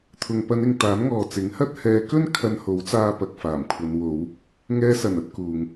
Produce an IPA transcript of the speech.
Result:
t̪ʰ ʊ˨ ŋ p ɐ˨˧ n ɪ˨ ŋ t̪ aː˨˥ n ŋ ɔː˨ t͡s ɪ˨˥ ŋ h ɐ˥ t̚ h ɛː˨˧ k ɵ˥ n kʰ ɐ˧ n h o˨˥ w t͡s aː˧ p ɐ˨ k̚ f aː˨˩ m kʷʰ ɐ˨˧ n w o˨˧ w | ŋ ɛː˧ s ɐ˨˩ n ɐ˧ t̚ k uː˨ ŋ

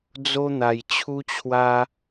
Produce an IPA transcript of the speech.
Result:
d͡z o˦ n̪ a˧ j t͡ɕʰ u˦ t͡ɕʰ w a˦

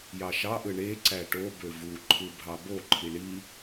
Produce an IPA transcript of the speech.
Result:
j ɑ ʃ ɑ ʔ ɯ ɳ e ǀ æ ʈ o b ø v u ǃʰ ɯ bʱ ɑ b o ǃʰ i ɳ i

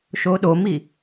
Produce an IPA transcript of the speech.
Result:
ʃ o ɗ o m i

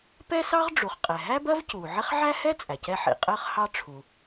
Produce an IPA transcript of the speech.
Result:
p ɛ˥ s ɑ˥ ʁ ɖ͡ʐ u˩ χ qʼ ɛ˩ ɦ æ˥ b ɜ˥ v c uː˩ ʕ ɪ˥ χ ʕ æ˥ h ɛ˥ t͡sʼ æ˩ c ɛ˥ ħ ḭ˩ qʼ əː˥ χ h ɑ˥ ʈ͡ʂʰ u˩

